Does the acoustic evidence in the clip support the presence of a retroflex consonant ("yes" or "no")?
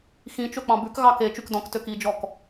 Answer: no